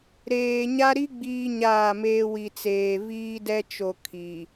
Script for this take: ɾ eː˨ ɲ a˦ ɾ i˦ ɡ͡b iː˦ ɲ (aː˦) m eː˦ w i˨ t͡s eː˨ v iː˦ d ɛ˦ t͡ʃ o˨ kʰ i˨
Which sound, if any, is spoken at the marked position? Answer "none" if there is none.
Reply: aː˦˨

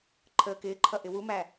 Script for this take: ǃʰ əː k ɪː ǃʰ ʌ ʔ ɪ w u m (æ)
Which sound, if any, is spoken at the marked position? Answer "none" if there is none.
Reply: æ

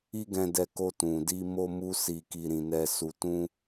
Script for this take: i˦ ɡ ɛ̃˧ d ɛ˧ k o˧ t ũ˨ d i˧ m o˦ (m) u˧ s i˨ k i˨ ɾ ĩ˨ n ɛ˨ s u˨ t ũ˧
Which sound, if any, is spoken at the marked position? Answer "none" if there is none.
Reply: m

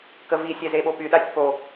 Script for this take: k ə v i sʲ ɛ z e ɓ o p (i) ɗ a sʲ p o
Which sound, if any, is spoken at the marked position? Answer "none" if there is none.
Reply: y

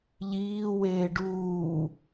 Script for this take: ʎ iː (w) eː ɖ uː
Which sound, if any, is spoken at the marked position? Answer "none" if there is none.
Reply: w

